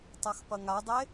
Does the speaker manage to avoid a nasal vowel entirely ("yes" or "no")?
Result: yes